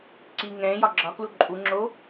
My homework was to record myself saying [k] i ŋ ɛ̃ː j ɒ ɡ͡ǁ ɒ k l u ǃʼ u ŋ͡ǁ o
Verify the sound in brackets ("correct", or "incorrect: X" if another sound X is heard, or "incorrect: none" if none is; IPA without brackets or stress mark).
incorrect: ǀ